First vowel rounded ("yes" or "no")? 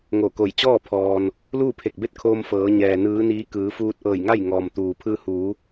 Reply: yes